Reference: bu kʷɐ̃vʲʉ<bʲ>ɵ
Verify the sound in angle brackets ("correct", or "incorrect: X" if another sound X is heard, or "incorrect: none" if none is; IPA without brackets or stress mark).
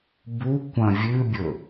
correct